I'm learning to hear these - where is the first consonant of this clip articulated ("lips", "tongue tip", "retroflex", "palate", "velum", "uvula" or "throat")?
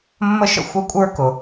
lips